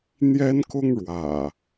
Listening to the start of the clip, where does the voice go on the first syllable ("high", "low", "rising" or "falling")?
high